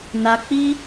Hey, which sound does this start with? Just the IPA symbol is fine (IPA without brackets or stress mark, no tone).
n